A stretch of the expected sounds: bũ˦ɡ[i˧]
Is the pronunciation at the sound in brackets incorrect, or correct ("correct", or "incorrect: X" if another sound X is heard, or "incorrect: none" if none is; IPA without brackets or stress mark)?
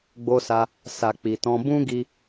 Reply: correct